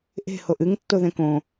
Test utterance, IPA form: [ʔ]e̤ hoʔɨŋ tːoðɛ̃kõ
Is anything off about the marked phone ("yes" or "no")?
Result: no